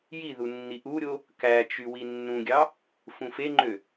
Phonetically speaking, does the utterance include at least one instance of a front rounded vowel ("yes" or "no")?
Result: yes